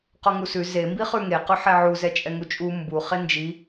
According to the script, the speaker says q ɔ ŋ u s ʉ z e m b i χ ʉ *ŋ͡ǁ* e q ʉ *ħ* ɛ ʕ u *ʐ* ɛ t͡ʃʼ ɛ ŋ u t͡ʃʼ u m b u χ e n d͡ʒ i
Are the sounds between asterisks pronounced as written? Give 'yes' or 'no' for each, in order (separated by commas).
no, yes, no